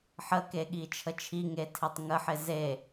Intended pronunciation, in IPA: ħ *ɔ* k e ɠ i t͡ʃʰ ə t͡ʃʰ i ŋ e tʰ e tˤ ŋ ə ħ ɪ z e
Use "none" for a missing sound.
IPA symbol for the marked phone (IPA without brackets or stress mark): ə